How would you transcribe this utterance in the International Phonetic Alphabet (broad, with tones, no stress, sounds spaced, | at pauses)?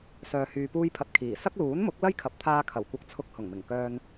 s œː˧ h yː˧ p uː˥ j pʰ ɐ˧ t̚ kʰ iː˨˩ s ɐ˥ k̚ l uː˨˥ n m ʊ˨˥ k̚ l ɐ˥ j kʰ ɐ˨˥ p̚ t̪ʰ aː˧ kʰ ɐ˨˩ w kʷ ɐ˨ k̚ t͡sʰ ʊ˧ k̚ h ʊ˨˩ ŋ m ɪ˨˩ ŋ k œː˧ n